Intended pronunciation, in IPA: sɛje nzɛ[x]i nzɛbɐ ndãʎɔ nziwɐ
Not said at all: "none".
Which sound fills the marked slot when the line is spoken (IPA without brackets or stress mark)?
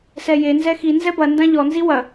x